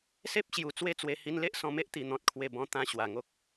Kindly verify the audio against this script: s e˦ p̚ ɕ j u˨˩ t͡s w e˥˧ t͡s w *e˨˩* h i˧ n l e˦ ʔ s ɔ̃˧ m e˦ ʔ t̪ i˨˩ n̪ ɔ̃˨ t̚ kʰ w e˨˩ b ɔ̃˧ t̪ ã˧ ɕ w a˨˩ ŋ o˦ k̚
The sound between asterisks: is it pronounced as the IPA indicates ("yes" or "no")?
no